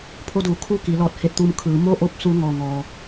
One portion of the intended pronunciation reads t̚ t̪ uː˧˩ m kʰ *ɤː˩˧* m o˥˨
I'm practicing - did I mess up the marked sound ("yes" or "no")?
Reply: yes